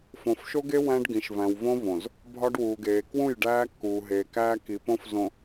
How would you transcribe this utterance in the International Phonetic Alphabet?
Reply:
f õ˨ f ʃ o˦ ɡ e˦ w æ̃˦ ɖ ɡ ĩ˨ ʃ v æ̃˨ w v õ˦ v õ˨ z | bʱ ɒ˦ ɖ w uː˨ ɡ eː˨ k w ũ˦˨ j ɖ æː˦ kː uː˨ ɦ eː˨ k æː˦ k i˨ p õ˦ f z õ˨

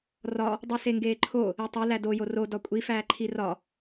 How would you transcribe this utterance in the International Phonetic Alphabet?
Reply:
r ɒ | dˤ u s e ŋ ɡ eː ǃʰ o | e tˤ e l æ d o j o r o d ɒ kʷʼ i f æː ǃʰ i r ɒ

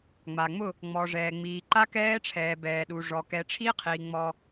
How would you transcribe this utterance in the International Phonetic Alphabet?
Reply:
ŋ͡m a˨ ŋ͡m ʊ˦˨ | ŋ͡m ɔ˨ ʐ ɛː˨ ŋ͡m iː˨ ǃ a˦ k ɛː˦ ʈ͡ʂʰ ɛː˨ b ɛː˨ ɗ u˨ ʐ ɔ˨ k ɛ˨ ʈ͡ʂʰ i˦ qʰ i˨ ŋ͡m ɔ˦

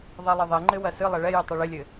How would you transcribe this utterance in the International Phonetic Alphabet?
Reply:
ðˤ ɛ lˠ ɘ ðˤ ɛ ŋ͡ǃ ɘ w ɐ s ɨ lˠ ɛ ɭ ɛ j ɨ tˤ i ɭ ɘ lʲ ɘ

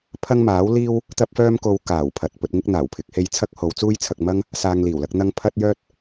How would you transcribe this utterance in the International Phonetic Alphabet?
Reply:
pʰ ɐ˥ ŋ m aː˨˥ w l iː˥ w | t̪ ɐ˥ p̚ f œː˥ m k o˧ w k aː˨˩ w pʰ ɐ˨ t̚ p ɵ˧ t̚ ŋ ɪ˥ k̚ n̪ aː˨˩ w pʰ ɪ˨˥ k̚ h e˧ j t͡sʰ ɐ˥ k̚ h o˨˧ w t͡s uː˥ j t͡sʰ ɐ˧ k̚ m ɐ˥ ŋ | s aː˧ ŋ l iː˨˩ w l ɐ˨˥ k̚ n̪ ɐ˥ ŋ pʰ ɐ˥ t̚ j œː˥ t̚

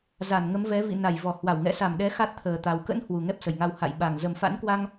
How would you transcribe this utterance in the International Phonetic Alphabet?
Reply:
z a˧˩ n ŋ ə˨˦ m v ɛ˨˦ v ḭ˧˨ n a˧˩ j v ɔ˧˩ h w a˧˩ w ŋ ɛ̰˧˨ s a˧˩ m ɗ ɛ˨˦ x a˦˥ t̚ t̪ʰ əː˨˩ t̪ a˨˩ w k ə̰˧˥ n h w u˨˩ ŋ ɛ˦˥ p̚ s ə˧˩ j ŋ a˧ w h a̰˧˨ j ɓ a˨˩ ŋ z ə˨˩ m f a̰˧˥ n k w a˧ ŋ

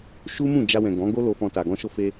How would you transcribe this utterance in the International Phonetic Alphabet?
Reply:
ʃ u˦ m ũ˦˨ d͡ʒ a˧ w ɛ̃˨ ɡ ɔ̃˨˦ ɡ o˦ l o˧ f ɔ̃˧ t a˨ ɡ ɔ̃˧ ʃ o˧ f e˧

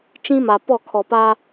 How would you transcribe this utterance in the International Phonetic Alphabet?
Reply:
t͡ʃ ĩ˦ m a˨ p ɔ˦˨ kʰ ɔ˨ p a˦

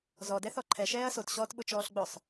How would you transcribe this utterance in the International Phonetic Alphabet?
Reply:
z ɔ d ɛ θ ɔ ǃʰ ɛ ʃ ɛː ɐ̯ s o t ɕ ɔː t ɓ ʊ t͡ʃ ɔː ɬ ɡ͡b ʊ sˤ

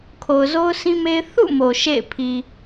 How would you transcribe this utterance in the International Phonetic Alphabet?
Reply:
kʰ o˨ ʊ̯ z o˦ ʊ̯ s ĩ˦ m e˦ ɪ̯ θ ṵ˦˨ m o˨ ʃ ḛ˦˨ ɪ̯ pʰ i˨

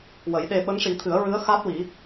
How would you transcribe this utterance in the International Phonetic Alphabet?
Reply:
w ə˨˩˦ j ɗ e˧ ɓ ə˧˥ ŋ ʂ i˨˩˦ t̪ʰ ɨ˨˩˦ ə̯ ɹ ɨ˧˥ ə̯ x a˦˥ t̚ w i˨˩˦

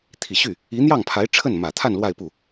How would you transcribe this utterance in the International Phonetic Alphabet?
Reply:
t̪ʰ i˨˩ ɕ y˥˩ | i˧˥ n̪ j ɑ˥˩ ŋ pʰ a˧˥ ɪ̯ ʈ͡ʂʰ ə˥˩ n m ä˨˩ t̪ʰ a˥˧ n l w a˥˧ ɪ̯ p u˥˩

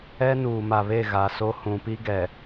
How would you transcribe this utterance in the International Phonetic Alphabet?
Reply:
ɛ˦ n uː˨ m a˨ β e˦˨ ɣ a˨ s o˦ h ũ˨ p i˦ ɡ ɛ˨

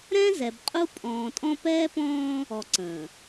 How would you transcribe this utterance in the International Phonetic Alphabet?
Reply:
ɾ ɛ̃˦ z ɛ˨ b qʼ u˦ pʼ ɔ̃ː˨ tʼ ɔ̃˦ p ɛː˦ p ɔ̃ː˦ | ɔ˨ ǀ ə̃ː˨

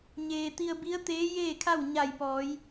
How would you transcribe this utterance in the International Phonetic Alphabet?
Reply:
ɲ eː˩ t̪ i˧ ə̯ b i˧˥ ə̯ t̪ eː˧˥ j eː˥˨ kʰ a˥˨ w ɲ a˧˩ j p ɔː˩˧ j

